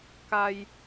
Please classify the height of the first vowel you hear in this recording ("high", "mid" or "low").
low